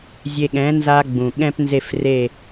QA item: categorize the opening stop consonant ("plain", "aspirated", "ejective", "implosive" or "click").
implosive